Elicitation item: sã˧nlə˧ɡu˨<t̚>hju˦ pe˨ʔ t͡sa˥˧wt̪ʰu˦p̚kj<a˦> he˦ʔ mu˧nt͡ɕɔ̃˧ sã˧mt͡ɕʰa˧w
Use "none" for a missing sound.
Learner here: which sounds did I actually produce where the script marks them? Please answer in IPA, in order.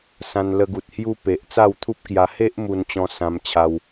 t̚, a˧

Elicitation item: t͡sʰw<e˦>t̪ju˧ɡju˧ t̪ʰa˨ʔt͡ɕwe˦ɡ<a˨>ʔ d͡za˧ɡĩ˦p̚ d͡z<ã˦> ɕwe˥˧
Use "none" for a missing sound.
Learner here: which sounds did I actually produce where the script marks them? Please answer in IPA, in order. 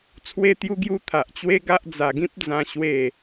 e˧, a˦, ã˦

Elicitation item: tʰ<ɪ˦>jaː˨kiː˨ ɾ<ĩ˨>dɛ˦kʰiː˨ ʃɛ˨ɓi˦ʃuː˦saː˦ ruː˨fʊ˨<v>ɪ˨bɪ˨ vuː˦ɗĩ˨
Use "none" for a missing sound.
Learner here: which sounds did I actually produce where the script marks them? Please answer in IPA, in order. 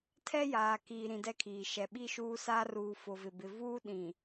ɛ˦, ĩ˨, v

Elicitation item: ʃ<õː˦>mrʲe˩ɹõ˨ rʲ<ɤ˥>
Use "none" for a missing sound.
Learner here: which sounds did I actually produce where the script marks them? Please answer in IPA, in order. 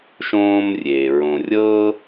õː˦, ɤ˥

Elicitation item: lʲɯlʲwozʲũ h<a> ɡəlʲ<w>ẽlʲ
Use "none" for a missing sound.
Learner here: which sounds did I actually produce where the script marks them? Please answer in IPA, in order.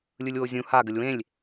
a, w

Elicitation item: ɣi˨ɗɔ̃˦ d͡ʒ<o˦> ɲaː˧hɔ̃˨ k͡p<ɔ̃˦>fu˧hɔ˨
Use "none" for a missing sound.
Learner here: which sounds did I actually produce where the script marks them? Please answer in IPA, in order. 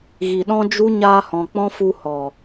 u˦, ɔ̃˦

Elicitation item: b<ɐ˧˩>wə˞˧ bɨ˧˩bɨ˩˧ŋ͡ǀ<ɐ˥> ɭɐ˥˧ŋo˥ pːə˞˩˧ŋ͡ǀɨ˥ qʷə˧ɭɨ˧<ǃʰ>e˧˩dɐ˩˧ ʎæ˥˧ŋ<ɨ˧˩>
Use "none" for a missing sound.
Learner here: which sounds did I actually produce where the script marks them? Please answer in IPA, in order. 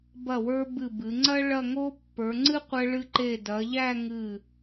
ɐ˧˩, ɐ˥, ǃ, ɨ˧˩

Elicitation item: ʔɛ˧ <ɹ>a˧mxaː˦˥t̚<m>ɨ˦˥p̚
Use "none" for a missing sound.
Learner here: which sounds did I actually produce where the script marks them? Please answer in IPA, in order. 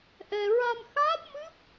ɹ, m

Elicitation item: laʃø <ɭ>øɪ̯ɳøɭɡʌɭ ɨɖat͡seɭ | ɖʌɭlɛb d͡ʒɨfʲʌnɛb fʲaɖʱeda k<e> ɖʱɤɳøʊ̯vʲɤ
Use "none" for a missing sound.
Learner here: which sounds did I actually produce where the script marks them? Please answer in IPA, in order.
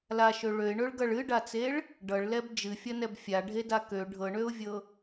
ɭ, ø

